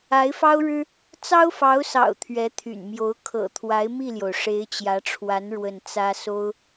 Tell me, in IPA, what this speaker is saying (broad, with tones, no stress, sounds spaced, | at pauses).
a˧˥ ɪ̯ f ɑ˥ ʊ̯ ɻ ɻ̩˥ | t͡s ɑ˥ ʊ̯ f ɑ˧˥ ʊ̯ s ɑ̰˨˩ ʊ̯ t̪ʰ ɥ ɛ˧˥ t̪ʰ y̰˨˩ n m j o˧˥ ʊ̯ kʰ ɤ̰˨˩ t̪ʰ w a˧˥ ɪ̯ m i˥˩ l j o˩ ʊ̯ ʂ e˧˥ ɪ̯ t͡ɕ j ä˧˥ ʈ͡ʂʰ w a˧˥ n ɻ w ə˥˩ n t͡s ä˥ s o˥ ʊ̯